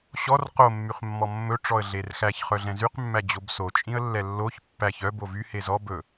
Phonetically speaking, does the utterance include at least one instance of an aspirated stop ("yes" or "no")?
no